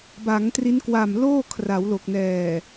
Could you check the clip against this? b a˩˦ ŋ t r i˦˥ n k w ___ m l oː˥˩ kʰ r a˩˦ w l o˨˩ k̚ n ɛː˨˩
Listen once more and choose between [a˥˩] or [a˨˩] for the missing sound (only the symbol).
a˨˩